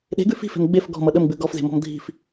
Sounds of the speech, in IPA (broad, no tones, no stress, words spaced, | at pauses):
ɗe̤ɡʉ fi̤fe̤m ɡ͡bef ɡɔ̤mʌ ɗəmɡ͡bʉ ɡɔfze̤mɔ̤m dʱi̤f